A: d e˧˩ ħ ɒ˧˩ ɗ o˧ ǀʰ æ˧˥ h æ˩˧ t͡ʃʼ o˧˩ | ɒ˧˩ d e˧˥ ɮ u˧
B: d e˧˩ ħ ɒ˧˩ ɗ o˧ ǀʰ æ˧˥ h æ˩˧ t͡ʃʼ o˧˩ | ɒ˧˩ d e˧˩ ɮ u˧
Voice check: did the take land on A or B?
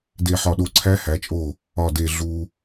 B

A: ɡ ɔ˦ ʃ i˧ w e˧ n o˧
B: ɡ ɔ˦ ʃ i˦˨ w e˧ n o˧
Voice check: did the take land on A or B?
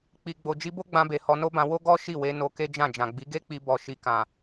B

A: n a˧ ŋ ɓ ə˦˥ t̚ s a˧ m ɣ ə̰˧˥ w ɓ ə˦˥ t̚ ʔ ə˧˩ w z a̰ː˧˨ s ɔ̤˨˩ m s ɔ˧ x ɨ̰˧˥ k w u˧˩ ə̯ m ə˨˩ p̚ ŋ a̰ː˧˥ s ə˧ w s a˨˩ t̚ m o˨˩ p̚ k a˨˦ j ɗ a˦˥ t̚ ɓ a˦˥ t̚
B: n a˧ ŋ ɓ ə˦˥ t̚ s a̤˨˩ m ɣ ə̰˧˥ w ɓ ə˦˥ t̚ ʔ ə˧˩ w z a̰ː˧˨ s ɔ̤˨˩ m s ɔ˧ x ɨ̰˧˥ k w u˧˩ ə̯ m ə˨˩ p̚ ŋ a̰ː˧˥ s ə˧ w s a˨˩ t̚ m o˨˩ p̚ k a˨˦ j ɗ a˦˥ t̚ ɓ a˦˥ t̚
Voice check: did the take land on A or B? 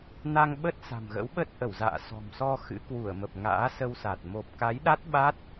B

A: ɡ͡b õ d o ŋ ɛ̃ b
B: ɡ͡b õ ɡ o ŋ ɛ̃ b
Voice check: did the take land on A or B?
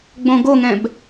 B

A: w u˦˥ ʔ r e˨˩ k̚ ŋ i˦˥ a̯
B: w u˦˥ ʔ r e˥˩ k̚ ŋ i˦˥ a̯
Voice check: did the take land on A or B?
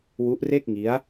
B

